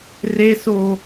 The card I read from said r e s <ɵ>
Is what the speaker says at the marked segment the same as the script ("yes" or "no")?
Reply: no